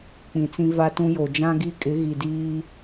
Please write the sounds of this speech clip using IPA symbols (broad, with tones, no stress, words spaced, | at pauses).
k͡pĩ˨t͡sĩ˦va˦ tũ˦jo˨ d͡ʒã˦ɡi˦kʼɪ˨˦ɣi˨ diː˦